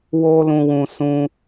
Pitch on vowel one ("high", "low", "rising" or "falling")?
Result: high